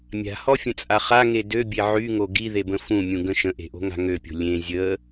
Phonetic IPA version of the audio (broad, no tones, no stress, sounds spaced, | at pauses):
mʲ a̤ h ɔ fʲ ə̃ t͡sʼ a χ a ŋ e d ø bʲ e ʕ y ŋ o ɡ i ð e b ə̃ f ũ mʲ ũ ɡ ə̃ ʃ ə̃ ʔ e̤ ʔ o̤ ŋ a̤ ŋ ø pʲ o̤ lʲ ẽ zʲ ə